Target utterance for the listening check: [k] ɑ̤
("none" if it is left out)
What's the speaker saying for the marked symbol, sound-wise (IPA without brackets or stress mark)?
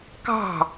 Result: k